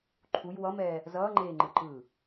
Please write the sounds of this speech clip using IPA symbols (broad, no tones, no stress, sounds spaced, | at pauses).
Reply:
ǃʰ u j w ʌ m ɛː | z ʌː ŋ͡ǃ eː ŋ͡ǃ ɯ ǃ ɯː